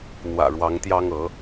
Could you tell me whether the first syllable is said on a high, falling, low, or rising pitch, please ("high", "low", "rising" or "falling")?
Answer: low